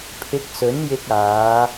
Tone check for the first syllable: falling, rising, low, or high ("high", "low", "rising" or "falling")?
rising